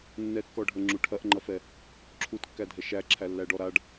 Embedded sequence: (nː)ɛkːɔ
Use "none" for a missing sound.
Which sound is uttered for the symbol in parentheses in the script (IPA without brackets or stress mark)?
nː